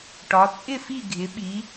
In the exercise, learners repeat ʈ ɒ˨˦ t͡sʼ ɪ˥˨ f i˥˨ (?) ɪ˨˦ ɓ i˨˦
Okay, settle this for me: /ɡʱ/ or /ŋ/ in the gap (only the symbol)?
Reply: ɡʱ